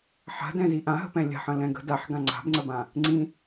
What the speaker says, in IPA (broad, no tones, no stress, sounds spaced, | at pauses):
ħ a̤ d ɛ̃ z i ʔ ã ɦ ə̤ p ɛ̃ lʲ a̤ ħ ə̃ l ɛ̃ ɡ ə̤ d a ħ ɡ ã ŋ͡ǀ a̤ b ŋ͡ǀ ə b ã | ŋ͡ǀ ĩ